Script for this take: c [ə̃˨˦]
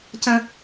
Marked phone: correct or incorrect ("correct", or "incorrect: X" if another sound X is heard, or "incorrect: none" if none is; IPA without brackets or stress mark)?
incorrect: ə̃˦